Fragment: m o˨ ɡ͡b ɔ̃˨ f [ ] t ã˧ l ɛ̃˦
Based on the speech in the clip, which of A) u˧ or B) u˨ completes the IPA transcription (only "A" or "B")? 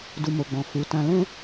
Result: B